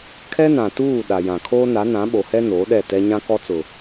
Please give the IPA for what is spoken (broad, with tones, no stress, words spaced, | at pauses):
kʰɛ˦nã˨tuː˦˨ ɗa˨jã˨kʰoː˦ na˨˦nã˨˦ɓo˨hɛ˦ noː˨˦ɗɛ˦˨tɛ˦ ɲã˦kɔ˦t͡sʊ˨